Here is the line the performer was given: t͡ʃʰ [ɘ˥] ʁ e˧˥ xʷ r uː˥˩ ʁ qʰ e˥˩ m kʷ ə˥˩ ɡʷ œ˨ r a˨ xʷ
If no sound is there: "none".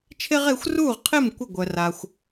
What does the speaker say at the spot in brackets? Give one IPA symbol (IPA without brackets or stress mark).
e˥